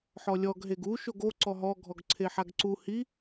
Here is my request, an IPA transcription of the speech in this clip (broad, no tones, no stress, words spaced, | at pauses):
ħɔlʲɔɡ ɦeɡu ʃoɡo ǀɔɦɔ ɡʱɔɡǀʰeħaɡǀu hi